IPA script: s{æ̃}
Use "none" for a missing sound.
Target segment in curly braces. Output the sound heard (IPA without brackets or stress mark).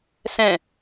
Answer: ɛ̃